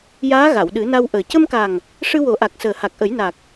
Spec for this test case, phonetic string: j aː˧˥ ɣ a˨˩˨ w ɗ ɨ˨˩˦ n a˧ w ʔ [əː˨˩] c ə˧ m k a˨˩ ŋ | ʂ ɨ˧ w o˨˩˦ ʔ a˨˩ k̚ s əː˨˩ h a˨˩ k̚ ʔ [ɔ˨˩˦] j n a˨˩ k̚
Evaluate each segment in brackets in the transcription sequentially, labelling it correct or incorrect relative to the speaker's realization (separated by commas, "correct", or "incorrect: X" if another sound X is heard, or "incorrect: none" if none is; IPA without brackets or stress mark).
correct, incorrect: ə˨˩˦